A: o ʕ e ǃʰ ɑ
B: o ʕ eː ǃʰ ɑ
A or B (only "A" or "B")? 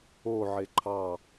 A